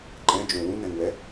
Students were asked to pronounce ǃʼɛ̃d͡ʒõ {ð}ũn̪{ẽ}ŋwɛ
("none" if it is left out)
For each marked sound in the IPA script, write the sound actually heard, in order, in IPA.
w, ɛ̃

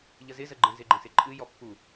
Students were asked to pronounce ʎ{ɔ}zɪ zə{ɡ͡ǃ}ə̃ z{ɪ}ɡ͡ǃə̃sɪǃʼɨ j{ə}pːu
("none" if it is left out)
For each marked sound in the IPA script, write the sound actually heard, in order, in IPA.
ə, ɡ͡ǃ, ɪ, ɔ

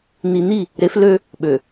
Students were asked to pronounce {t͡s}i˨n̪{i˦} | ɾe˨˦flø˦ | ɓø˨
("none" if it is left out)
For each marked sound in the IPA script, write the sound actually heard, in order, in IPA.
n̪, i˦˨

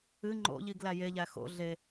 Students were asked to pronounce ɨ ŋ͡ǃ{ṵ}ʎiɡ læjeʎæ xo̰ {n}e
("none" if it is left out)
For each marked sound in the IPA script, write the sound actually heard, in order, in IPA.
o̰, ɮ

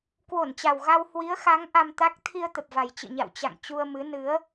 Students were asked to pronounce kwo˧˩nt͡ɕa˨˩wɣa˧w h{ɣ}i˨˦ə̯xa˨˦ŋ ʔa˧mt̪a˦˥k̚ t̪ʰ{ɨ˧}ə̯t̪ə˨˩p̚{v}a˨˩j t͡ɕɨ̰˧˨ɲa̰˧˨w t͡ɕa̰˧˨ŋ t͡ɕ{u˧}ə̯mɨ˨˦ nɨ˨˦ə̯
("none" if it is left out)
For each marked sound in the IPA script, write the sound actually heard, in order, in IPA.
w, i˧, v, u˧

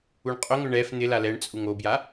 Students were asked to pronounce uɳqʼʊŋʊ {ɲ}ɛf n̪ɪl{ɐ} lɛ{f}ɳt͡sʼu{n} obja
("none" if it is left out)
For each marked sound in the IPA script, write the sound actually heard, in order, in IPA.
ɳ, a, none, ŋ

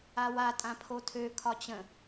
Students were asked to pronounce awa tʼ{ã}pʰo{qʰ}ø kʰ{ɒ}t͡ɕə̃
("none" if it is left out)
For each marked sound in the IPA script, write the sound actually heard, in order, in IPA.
ã, tʰ, ɒ

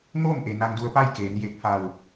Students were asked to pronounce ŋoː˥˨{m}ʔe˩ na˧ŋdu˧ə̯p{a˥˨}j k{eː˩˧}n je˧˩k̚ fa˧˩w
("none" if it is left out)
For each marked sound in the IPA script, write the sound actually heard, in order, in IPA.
m, a˥˨, eː˩˧

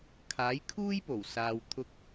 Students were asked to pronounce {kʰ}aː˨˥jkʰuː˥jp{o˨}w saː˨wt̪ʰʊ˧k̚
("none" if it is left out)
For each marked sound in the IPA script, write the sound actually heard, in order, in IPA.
kʰ, o˨˩

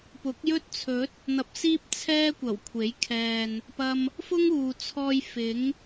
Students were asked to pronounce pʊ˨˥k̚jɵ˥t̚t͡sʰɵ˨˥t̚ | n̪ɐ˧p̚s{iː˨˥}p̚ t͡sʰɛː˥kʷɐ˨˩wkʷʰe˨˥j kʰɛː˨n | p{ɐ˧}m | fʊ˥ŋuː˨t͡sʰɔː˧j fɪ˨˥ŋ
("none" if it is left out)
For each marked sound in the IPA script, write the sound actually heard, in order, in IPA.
iː˥, ɐ˧

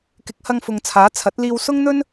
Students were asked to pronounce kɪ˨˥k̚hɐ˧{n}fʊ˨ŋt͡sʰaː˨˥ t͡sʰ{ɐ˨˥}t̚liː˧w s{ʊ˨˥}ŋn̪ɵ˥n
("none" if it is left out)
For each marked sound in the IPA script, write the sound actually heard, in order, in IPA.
ŋ, ɐ˨˥, ʊ˥

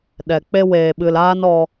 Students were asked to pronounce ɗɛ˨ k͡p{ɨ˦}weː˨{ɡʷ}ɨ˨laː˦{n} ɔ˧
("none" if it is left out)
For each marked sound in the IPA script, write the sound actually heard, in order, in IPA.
e˦, ɓ, n

